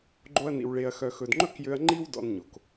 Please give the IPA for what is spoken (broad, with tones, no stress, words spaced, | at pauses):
ɡ͡ǃo˧ɐ̯nḭ˨w ɭe˨ɐ̯ xœ˨xɵ˨dŋ͡ǃɵ˦kjø˧ɐ̯ ŋ͡ǃi˦w dɔ̰˧nɲo˨k